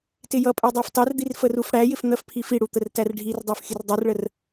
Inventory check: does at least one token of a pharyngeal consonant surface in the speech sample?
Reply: no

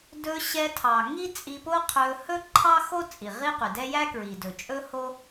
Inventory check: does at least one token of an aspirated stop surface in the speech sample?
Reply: yes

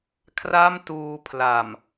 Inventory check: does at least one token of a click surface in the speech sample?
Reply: no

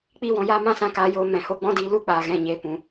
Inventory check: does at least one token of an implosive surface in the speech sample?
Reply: no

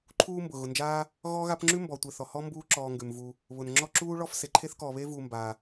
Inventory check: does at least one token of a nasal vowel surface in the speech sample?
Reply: no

